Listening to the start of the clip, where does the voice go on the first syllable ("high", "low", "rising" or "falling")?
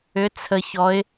rising